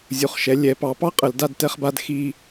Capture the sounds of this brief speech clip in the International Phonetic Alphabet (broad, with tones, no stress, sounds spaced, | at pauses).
zʲ u˩˥ χ ʃ ɛ˩˥ lʲ ɛ˩˥ p ɑ˩˥ p ɑ˦ qʼ ə˧˩˧ l d a˥˨ d t ɛ˦ χ b a˦ d x i˦